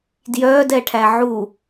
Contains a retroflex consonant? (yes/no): yes